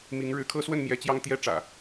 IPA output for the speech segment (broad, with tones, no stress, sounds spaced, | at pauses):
m i˨˦ ŋ ɻ ɻ̩˨˦ kʰ ɤ˦ s w ə˥˨ n m j ɛ˨˦ t͡ɕ j ɑ˦ ŋ t̪ j ɛ˦ ʈ͡ʂ ä̰˨˩